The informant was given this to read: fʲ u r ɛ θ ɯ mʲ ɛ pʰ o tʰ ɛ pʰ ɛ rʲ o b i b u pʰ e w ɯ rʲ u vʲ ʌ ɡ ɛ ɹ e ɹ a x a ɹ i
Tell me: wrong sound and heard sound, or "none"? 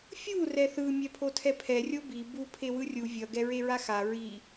none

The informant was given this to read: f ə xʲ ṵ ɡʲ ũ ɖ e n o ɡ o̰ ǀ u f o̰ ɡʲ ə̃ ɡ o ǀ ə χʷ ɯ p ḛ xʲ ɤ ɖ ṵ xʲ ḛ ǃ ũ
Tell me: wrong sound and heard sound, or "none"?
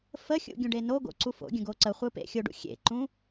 ɤ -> o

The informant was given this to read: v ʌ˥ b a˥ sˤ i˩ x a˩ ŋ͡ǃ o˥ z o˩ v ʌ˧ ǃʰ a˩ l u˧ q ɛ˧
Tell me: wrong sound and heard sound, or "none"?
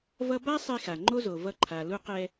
i˩ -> i˧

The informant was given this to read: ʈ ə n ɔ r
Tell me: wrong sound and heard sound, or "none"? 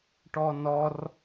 ə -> ɔ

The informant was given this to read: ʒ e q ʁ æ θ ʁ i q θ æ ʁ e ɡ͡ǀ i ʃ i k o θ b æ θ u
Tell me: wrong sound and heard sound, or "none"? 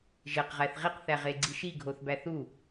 k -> ɡʱ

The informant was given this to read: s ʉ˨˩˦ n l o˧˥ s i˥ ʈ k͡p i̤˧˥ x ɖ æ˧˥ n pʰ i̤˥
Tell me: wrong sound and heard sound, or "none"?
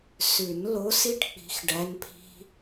none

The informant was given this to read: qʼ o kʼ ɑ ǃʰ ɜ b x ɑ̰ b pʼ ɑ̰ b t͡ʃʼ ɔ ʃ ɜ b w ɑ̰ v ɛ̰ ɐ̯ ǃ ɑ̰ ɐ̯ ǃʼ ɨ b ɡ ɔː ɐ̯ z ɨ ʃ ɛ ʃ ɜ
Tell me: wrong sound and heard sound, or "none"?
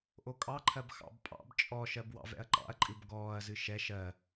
qʼ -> ʔ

